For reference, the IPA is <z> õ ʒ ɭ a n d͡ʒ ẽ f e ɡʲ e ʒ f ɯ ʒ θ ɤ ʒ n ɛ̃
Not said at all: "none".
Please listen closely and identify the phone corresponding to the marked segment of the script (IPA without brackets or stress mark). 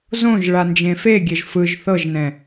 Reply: z